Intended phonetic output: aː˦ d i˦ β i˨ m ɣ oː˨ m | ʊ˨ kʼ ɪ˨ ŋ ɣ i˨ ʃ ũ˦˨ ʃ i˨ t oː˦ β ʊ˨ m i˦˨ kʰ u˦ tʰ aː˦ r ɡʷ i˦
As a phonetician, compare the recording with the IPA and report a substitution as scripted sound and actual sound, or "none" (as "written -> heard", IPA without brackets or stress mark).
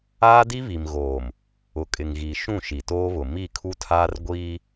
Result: none